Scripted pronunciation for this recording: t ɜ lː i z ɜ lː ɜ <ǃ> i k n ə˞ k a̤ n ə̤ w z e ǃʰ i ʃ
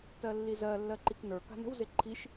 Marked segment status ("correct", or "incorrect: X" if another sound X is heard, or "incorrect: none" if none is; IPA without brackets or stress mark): correct